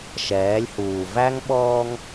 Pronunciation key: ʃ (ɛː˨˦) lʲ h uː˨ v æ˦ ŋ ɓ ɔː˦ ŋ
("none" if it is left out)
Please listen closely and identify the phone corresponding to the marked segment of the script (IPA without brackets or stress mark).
ɛː˨˦